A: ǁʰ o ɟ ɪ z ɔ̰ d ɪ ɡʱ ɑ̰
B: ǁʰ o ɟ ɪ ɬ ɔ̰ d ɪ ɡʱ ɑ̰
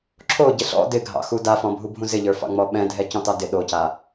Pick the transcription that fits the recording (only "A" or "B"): B